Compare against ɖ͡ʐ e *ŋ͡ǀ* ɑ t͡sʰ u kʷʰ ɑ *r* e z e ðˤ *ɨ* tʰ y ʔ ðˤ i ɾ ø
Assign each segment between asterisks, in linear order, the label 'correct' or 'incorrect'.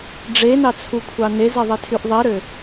incorrect: n, incorrect: n, incorrect: i

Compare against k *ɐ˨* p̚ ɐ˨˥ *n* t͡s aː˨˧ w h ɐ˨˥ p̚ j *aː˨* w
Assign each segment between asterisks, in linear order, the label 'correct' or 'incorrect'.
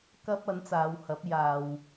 incorrect: ɐ˥, correct, correct

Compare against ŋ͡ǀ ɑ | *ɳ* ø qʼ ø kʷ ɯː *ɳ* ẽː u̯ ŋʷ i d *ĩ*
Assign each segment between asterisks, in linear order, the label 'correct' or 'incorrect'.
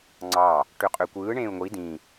incorrect: ʈ, correct, correct

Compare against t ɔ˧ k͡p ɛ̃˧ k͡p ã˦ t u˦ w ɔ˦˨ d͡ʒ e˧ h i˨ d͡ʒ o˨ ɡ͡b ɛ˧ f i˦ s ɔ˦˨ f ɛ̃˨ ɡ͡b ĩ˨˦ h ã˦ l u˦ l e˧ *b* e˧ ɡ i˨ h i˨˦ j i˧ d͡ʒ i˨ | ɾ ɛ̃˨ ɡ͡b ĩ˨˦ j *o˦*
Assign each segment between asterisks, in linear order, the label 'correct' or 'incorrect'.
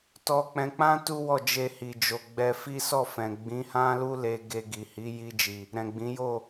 incorrect: ɡ, incorrect: o˦˨

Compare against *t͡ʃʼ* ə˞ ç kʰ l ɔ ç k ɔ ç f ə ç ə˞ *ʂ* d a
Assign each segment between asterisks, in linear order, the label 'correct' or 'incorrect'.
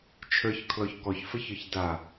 incorrect: t͡ʃʰ, incorrect: ç

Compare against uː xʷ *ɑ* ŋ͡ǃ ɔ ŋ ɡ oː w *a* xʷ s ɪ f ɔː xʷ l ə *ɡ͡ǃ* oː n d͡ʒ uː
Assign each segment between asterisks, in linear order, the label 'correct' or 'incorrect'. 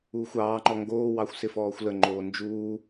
incorrect: ɑː, incorrect: ɑ, incorrect: ŋ͡ǃ

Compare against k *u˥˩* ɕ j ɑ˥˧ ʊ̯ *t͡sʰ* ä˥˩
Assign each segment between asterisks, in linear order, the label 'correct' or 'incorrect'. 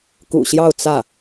incorrect: ṵ˨˩, incorrect: t͡s

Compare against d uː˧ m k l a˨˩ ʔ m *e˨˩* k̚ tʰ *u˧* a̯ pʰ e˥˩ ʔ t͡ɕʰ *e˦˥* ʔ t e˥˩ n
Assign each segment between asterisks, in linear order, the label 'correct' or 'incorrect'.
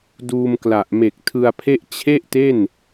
correct, incorrect: ɯ˧, incorrect: e˥˩

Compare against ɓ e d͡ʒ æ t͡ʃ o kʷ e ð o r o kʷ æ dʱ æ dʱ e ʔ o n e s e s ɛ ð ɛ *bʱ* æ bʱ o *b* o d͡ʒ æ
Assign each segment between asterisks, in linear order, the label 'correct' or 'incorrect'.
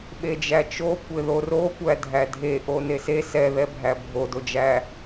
correct, incorrect: d

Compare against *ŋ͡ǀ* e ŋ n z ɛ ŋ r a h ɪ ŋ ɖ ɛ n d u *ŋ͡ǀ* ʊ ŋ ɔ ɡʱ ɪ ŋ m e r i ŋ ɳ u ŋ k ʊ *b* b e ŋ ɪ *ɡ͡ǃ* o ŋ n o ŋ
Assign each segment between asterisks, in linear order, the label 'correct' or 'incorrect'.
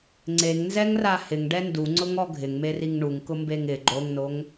correct, correct, incorrect: m, correct

